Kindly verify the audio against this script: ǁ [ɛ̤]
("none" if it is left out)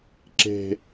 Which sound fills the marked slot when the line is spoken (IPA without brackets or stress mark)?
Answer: e̤